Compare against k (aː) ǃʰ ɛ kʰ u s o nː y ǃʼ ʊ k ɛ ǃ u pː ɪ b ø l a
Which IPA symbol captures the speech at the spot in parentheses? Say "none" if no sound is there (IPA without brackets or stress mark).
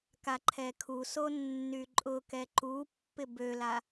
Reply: a